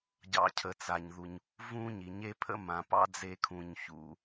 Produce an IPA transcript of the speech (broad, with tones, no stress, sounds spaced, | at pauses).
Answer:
ɟ ɑ̰˨ cʰ ə˩ t͡s a˩ ɲ ð u˩ ɲ | v ũ˦ ɲ i˩ ɲ e˦ pʰ ə̰˦ m ã˩ p ɑ̰˦ d͡z e˨ kʰ ũ˩ ɲ ç ṵ˩